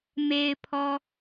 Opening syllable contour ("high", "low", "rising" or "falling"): low